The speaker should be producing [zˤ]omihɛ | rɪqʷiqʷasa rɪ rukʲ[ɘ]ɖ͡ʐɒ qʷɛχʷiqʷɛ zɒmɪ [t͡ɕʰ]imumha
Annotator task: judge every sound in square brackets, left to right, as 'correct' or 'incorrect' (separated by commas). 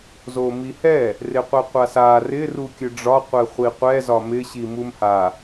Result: incorrect, correct, incorrect